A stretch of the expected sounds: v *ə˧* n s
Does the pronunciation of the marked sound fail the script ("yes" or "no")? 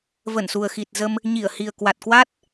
yes